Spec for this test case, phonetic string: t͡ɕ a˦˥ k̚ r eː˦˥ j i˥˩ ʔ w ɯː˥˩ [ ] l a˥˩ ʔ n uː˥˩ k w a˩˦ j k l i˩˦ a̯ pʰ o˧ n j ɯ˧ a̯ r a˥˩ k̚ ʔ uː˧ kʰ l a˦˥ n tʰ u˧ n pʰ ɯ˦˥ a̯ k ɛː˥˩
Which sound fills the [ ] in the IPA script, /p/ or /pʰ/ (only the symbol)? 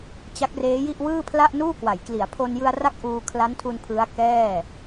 pʰ